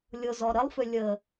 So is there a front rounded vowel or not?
yes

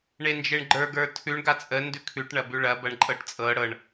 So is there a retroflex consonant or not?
yes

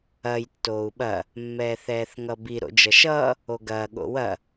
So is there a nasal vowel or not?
no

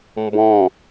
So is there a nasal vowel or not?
yes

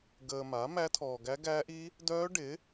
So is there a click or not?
no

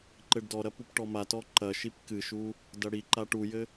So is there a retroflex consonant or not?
yes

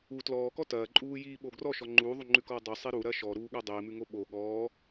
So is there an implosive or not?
yes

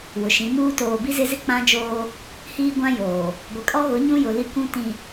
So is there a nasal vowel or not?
yes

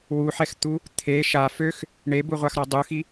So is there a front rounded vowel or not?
yes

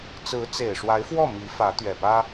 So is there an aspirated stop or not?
no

